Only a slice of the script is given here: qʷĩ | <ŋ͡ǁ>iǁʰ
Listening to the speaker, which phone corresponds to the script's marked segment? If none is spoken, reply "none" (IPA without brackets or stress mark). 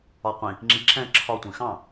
ŋ͡ǁ